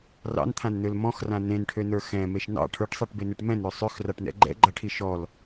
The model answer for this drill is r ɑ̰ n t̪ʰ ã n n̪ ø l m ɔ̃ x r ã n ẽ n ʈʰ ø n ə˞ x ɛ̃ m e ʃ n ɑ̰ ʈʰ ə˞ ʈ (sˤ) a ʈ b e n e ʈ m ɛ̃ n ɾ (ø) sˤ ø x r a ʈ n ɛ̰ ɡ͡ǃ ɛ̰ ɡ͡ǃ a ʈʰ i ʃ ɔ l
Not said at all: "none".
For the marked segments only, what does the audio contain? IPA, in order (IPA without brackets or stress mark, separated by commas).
sˤ, ø